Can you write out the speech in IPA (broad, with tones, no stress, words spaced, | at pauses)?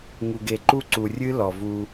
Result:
ŋu˨ɡe˨ǃu˦ǀu˨ rʲɨ˦ lɔ˨vu˧